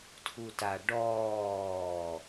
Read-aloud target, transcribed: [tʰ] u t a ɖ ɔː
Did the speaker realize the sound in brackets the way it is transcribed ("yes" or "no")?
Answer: yes